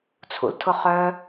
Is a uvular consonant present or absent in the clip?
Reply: present